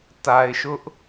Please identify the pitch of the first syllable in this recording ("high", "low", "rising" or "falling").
low